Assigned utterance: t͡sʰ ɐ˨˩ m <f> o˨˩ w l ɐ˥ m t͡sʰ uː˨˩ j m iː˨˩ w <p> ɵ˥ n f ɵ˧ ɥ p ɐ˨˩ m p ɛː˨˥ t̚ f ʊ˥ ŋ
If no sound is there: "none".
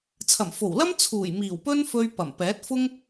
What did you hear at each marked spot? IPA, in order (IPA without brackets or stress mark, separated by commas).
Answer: f, p